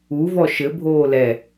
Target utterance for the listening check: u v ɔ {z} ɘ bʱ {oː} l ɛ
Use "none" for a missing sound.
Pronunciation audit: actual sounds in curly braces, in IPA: ʃ, oː

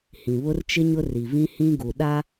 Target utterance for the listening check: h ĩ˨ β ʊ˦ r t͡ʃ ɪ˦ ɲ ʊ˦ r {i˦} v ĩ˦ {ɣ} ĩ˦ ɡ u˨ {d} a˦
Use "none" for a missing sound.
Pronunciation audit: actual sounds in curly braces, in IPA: i˨, h, ɗ

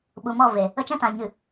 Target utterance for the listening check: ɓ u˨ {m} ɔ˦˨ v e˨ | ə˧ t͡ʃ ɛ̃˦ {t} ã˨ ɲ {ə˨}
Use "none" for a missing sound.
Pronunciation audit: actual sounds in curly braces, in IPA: m, t, ɨ˨

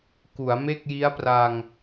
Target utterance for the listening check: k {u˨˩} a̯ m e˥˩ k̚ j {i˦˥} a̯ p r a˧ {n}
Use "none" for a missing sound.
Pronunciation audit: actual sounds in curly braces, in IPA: u˩˦, i˦˥, ŋ

